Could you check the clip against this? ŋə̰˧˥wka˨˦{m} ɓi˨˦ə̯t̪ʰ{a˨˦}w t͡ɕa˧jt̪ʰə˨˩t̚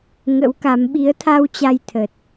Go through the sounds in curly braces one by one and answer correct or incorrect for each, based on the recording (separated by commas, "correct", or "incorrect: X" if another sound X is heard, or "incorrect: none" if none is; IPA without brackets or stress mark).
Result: correct, incorrect: a˧